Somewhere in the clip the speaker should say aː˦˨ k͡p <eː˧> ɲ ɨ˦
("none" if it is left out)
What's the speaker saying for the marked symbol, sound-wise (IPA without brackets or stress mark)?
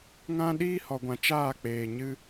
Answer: eː˨